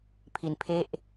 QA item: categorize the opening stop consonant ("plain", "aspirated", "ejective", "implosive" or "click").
aspirated